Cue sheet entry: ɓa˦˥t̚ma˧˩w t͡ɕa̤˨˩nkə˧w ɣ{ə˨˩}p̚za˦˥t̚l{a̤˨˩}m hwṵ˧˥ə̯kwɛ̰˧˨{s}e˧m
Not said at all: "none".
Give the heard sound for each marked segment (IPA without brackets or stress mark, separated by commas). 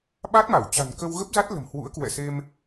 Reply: ə˦˥, ə̤˨˩, s